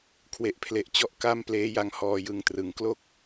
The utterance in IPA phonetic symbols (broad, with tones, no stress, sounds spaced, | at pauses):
kʰ w e˦˥ ʔ pʰ l e˦˥ ʔ t͡ɕ ɔ˥˩ ʔ k a˥˩ m p l eː˦˥ j a˧ ŋ h ɔː˧ j ɯ˧ ŋ t r ɯ˨˩ ŋ k l o˥˩ k̚